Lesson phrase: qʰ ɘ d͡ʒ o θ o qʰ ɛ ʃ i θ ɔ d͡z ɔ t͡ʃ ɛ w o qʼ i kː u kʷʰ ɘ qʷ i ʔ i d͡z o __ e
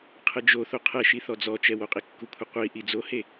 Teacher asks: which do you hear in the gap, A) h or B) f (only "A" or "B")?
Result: A